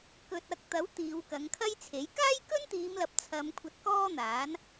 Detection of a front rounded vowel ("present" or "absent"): absent